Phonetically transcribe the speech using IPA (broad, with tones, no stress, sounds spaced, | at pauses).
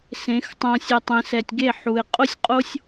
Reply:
s ẽ˨˦ x tˤ õ˧ sʲ ə˧ tˤ ẽ˧ s ɛ˨ tʲ ɡ e˦˨ ħ u˨ ɪ̯ qʼ o˦ sʲ qʼ o˦ sʲ